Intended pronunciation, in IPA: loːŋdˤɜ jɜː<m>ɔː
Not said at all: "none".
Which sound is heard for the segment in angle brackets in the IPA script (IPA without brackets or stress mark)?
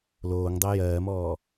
m